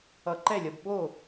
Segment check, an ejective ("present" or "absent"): absent